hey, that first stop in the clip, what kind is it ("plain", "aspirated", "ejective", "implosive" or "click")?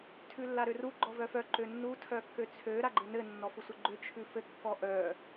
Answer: aspirated